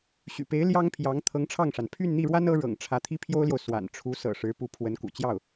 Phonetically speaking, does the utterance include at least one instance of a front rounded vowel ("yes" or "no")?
yes